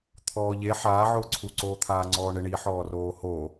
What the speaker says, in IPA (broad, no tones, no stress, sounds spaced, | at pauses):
t̪ʰ ɔː ʎ e ħ aː ʕ ʊː ǀʰ u ǀ oː t̪ʰ aː ŋ͡ǀ ɔː ɳ ɪ ɳ i ħ ɔː r oː h o